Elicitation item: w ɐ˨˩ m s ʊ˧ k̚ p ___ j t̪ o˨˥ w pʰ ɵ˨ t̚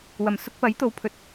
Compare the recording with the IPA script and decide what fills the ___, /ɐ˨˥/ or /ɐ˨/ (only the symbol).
ɐ˨˥